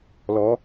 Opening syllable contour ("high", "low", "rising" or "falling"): rising